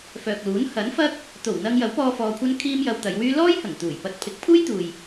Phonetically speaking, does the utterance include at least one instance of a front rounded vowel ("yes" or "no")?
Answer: yes